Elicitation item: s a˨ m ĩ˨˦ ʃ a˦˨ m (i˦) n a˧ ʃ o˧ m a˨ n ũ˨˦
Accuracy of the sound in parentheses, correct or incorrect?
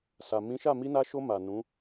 incorrect